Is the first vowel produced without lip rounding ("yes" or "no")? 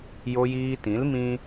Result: no